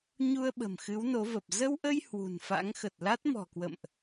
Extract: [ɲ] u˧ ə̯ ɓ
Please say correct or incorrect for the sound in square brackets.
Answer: correct